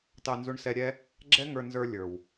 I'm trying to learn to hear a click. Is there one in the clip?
yes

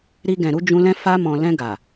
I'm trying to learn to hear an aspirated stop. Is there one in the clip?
no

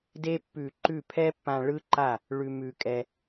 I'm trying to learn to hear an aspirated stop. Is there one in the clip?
yes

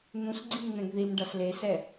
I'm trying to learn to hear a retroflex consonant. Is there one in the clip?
yes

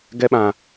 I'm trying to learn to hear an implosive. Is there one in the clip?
yes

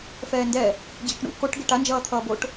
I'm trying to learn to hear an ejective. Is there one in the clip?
no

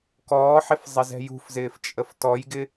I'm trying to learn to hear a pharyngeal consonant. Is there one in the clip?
yes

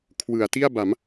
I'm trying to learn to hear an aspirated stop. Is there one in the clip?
yes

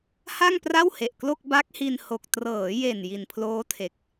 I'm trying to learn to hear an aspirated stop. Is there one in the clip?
yes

